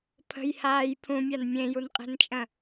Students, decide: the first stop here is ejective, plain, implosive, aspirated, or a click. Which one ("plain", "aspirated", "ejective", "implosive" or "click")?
aspirated